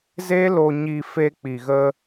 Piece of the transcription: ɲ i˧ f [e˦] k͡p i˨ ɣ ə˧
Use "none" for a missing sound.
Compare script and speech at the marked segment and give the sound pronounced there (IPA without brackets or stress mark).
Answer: e˧